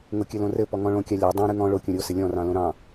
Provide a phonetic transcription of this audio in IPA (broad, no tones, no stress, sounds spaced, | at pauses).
ŋ o kʲ ɘ l õ r ɘ p ɔ ŋ ɔ̃ ɭ õ kʲ ɑ lʲ ɑ dˤ ɑ̃ ɾ ɨ ŋ ɔ̃ ɭ o kʲ õ ɾʲ o s ɘ lʲ ɔ̃ r ɑ̃ l õ ɾ ɑ̃